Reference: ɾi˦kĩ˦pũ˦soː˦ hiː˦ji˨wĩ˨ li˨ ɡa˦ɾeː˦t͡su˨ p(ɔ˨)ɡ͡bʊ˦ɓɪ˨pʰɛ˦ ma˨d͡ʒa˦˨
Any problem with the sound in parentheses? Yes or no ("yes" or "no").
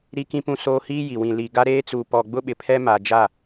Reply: no